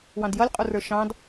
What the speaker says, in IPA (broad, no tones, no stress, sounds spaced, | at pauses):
w ɑ̃ d j ʌ lʲ qʼ u r ə˞ ʃ ɑ̃ d